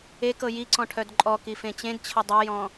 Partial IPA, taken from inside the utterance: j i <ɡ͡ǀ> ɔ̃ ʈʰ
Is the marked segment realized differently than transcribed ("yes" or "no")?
yes